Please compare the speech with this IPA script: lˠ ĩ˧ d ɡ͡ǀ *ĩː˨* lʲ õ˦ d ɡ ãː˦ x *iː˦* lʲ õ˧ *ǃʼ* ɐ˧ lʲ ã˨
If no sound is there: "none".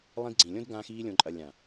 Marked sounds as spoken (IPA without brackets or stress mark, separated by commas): ĩ˨, iː˦, ǃʼ